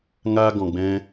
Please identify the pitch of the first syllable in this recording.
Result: high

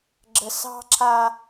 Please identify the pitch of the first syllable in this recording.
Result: low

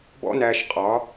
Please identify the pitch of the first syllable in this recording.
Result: high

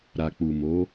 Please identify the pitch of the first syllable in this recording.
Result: low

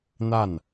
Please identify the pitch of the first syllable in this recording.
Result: falling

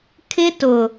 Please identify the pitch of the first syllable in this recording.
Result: high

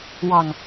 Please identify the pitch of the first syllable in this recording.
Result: low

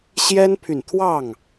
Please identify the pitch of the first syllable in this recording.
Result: high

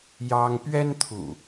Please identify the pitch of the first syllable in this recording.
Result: high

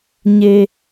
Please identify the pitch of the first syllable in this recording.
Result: high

